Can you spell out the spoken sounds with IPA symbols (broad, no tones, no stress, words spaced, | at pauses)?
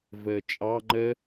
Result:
vəːt͡ʃʼɑ ŋ͡ǃə